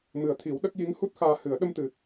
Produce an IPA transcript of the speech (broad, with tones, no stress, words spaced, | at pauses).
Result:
mɨ˨˩ə̯t̪ʰi˨˩˦w ɗə˦˥k̚ ji˧˥ŋhu˦˥t̚ xaː˧hɨ˨˩˦ə̯ ɗə˧m t̪ɨ˨˩